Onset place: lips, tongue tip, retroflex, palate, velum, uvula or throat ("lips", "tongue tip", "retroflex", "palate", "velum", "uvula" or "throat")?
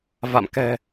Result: lips